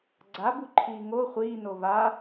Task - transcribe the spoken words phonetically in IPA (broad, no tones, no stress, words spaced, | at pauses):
ɡ͡ǀabuǃʰiː ŋo χʷiːno va